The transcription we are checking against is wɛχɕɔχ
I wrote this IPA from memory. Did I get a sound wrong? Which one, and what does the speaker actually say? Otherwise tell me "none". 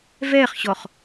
w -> v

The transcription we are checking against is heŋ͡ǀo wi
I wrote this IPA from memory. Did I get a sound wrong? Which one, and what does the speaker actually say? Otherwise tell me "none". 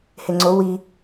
none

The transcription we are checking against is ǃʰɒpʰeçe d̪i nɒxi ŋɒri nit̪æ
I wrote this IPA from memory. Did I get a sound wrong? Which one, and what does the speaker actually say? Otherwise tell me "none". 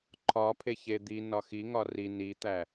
none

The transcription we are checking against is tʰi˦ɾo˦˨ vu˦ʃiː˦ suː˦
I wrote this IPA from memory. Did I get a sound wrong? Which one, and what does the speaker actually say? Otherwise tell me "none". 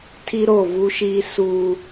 none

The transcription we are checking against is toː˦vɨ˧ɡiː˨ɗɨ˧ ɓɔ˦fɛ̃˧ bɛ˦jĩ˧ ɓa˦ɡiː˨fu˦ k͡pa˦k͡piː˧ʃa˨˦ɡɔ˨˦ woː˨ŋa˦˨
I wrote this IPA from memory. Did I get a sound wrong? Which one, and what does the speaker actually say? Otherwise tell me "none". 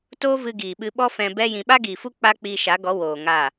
ɗ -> ɓ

